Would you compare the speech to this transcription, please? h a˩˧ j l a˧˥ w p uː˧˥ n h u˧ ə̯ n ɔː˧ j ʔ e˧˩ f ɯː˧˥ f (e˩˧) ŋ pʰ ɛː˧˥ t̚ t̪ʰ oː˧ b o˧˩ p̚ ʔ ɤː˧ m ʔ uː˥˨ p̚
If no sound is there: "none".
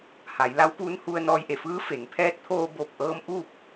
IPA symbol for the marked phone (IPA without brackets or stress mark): e˩˧